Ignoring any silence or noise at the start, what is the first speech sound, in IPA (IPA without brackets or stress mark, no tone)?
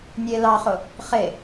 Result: nʲ